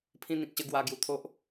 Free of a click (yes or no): yes